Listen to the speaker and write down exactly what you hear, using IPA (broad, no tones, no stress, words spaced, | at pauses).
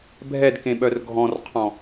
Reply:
bʱɛdkẽɓœr ɡʱɔ̃rqʰɔ̃